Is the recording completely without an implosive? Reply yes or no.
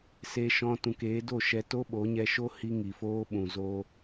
no